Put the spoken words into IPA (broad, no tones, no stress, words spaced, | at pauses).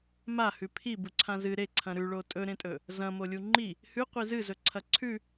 ma hʉpʰi buǀʰãzɨ ɾeǀʰɐ̃ ɾʉɭo tʼɵɾẽtʼɵ | zɐ̃ molʲuŋ͡ǃi | hʉ qʷizɨzɵ ǀʰɐǀʰʉ